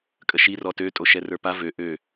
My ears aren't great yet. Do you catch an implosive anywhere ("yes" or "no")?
no